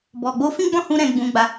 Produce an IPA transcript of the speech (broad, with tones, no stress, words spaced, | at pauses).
bɔ˨ɡ͡bo˧fĩ˦ ɡ͡bɔ̃˦˨hũ˧ ɾɛ̃˧ɡ͡bũ˧ɡ͡ba˧